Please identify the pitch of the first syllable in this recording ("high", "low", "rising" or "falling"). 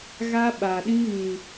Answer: high